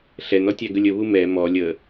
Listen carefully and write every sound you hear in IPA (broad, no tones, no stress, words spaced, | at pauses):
ɬɛnɔtʲæ ɡəlʲəβu mɛ mɔ lʲə